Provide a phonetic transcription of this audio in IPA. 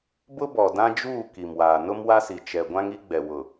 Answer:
b ʊ˦ b ɔ˨ d ã˦ d͡ʒ uː˦˨ k i˨ m w aː˨ n ʊ˦ m w a˦ s i˨ t͡ʃ ɛ˨ ɡʷ ã˦ ŋ i˦ ɡ͡b ɛ˨ w ʊ˨

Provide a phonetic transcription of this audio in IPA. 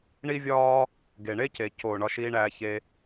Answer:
ɳ i˦ vʲ ɒː˦ | ɡ e˩ ɳ e˥ c e˩ c o˩ ɳ ɒ˦ ʃ iː˥ ɳ æː˦ ç e˥

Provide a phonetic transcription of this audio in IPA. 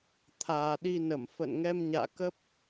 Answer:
t̪ʰ aː˨˩ ɗ i˧ n ə˧˩ m f ə̰ː˧˨ n ŋ ɛ˧ m ɲ a̰ː˧˨ k ə˦˥ p̚

